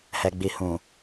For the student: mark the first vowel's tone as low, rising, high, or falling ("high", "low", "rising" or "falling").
low